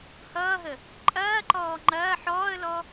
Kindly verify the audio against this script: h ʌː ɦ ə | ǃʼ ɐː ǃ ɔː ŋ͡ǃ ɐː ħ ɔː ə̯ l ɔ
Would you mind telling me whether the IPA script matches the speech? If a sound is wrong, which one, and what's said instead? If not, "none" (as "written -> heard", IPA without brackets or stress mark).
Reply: none